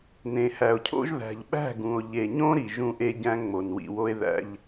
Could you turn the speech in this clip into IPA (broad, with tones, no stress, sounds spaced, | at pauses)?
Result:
n ẽ˨ h æ˨ o̯ cʰ o̰˦ ʒ ð æ̤˨ ʎ ɓ æ̤˦˨ ɡ ũ˨ o̯ ʎ e˨ ɲ õ˦ ɾ i˨ ʒ ũ˦ ʔ e˦ ɟ æ̃˦ ŋ͡m o˨ n w ḭ˨ w o˦ e̯ ð æ̰˦ ʎ